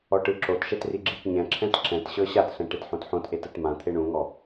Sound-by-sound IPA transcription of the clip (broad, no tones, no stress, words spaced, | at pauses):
ɔʈɯǁotʃɛt riɡ͡ǁitɲɛ̃ǁʰɛ̃t ǁɛ̃tɕɤ ɕatɬɛ̃ ʈetħõtħõtʔet ɯtmãt̪ʰe ɳũŋɔ